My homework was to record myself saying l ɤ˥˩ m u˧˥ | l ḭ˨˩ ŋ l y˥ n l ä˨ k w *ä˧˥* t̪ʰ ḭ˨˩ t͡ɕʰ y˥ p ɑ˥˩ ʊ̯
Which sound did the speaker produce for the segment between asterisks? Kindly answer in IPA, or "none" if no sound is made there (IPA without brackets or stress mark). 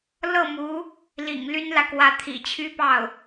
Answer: ä˧˥